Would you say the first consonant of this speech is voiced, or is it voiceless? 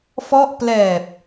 voiceless